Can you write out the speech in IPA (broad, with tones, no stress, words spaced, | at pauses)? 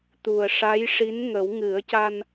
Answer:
t̪u˨˩ə̯ʂa˧˥j ʂi˧˥nŋə˨˩˦w ŋɨ˨˩˦ə̯ca˧n